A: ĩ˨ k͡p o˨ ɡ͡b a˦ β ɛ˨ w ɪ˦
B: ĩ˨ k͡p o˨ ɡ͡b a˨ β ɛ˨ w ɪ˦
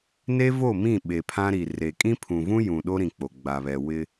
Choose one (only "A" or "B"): B